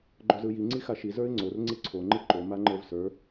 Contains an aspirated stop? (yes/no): yes